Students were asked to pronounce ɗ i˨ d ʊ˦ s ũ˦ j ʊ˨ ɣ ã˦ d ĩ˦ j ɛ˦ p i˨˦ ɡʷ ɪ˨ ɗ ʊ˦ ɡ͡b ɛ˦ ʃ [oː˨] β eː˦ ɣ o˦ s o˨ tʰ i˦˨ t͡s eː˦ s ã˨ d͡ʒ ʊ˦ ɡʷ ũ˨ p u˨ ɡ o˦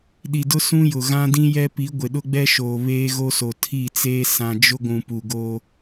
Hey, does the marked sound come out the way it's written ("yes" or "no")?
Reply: yes